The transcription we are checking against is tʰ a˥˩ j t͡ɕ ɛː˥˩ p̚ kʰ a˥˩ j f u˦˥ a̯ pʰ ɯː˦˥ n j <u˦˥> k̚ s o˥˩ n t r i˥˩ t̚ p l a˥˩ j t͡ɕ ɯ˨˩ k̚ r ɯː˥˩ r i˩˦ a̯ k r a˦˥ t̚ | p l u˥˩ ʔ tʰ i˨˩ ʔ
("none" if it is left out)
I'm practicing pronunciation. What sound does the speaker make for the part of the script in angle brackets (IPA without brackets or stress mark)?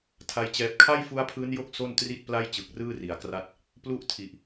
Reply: o˦˥